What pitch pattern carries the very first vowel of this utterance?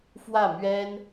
falling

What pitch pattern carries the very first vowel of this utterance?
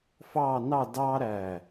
falling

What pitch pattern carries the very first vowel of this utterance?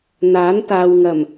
rising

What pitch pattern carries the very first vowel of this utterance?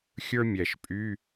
high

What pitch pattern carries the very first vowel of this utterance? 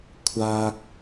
high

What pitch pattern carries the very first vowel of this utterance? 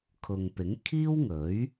low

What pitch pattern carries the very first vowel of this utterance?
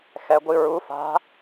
rising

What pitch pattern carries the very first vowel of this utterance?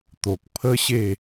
low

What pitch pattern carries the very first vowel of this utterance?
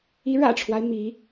rising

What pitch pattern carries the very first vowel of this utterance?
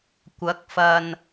rising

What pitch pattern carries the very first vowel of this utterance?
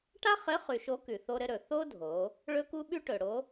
high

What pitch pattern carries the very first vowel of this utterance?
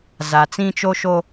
low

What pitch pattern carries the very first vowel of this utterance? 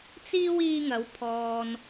high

